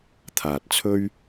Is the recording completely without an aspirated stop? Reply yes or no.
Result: no